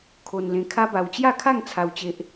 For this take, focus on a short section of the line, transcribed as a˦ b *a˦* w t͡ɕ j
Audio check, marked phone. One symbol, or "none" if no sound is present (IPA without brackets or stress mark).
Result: a˧